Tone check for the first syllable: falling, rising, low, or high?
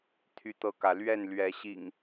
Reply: high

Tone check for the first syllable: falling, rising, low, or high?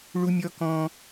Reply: high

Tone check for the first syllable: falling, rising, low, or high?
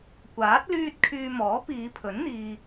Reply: rising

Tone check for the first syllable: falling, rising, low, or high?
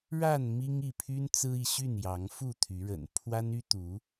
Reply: falling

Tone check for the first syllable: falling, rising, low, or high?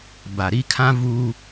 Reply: low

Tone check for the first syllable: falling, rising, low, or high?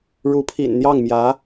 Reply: rising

